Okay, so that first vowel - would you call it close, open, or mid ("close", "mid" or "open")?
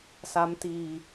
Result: open